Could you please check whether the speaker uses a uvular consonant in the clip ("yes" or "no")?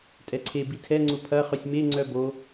yes